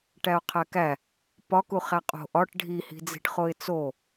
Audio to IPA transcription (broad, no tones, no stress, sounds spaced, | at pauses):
ʈ æ ʊ̯ qʰ æ k æ | p ɒ k u χ æ qʼ o̤ ʔ ɒ ʈ ɖʱ i h i̤ d͡z i̤ ʈ χ o ɪ̯ t͡s o